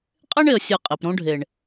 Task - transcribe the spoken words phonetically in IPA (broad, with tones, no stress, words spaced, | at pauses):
qʼe˦ɳe˨ə̯ sʲə˦˨qʼe˨p ɾõ˦ɖʱe˨ɳ